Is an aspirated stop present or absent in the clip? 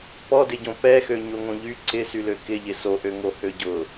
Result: absent